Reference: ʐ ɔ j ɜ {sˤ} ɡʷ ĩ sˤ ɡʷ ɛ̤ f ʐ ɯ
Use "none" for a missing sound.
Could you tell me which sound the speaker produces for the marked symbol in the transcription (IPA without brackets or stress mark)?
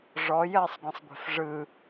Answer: sˤ